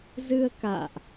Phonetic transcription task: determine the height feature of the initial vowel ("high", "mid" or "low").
high